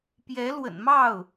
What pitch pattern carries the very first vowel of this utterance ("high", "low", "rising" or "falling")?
rising